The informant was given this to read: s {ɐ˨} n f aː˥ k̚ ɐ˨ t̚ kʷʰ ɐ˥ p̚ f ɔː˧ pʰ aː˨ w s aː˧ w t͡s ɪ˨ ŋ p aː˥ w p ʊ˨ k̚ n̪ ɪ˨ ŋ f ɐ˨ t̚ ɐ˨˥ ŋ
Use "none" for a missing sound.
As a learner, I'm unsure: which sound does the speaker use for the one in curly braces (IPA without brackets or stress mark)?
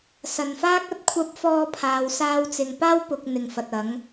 ɐ˨